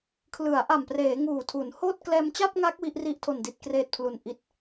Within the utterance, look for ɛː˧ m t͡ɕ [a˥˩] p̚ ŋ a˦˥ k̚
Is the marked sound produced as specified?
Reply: yes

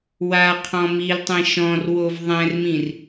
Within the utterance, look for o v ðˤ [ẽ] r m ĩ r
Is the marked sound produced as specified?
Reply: no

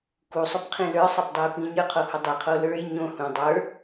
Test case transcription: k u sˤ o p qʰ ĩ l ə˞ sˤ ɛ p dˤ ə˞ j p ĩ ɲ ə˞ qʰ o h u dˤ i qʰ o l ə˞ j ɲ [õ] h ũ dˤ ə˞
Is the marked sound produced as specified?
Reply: yes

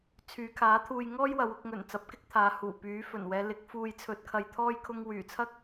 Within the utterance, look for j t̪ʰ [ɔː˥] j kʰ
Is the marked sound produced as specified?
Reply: yes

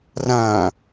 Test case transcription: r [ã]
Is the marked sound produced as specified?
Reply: yes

